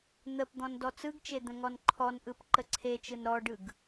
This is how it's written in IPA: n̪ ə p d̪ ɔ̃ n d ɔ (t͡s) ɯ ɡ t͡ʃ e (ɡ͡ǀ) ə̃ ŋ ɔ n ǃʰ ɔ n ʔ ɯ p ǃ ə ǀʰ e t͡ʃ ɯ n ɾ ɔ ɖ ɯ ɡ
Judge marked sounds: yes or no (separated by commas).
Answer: yes, no